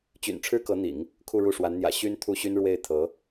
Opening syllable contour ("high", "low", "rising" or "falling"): low